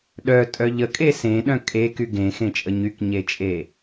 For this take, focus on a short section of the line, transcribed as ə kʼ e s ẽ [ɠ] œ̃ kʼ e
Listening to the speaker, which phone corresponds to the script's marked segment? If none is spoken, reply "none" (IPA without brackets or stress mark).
ɗ